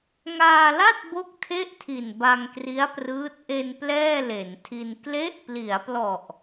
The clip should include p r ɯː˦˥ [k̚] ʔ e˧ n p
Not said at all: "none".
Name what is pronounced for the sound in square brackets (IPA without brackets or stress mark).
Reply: t̚